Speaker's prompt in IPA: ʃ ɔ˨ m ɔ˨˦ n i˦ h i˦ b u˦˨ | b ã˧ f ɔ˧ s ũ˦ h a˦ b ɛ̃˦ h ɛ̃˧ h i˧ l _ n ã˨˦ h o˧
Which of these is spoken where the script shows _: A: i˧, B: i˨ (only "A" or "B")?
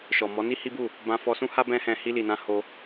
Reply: B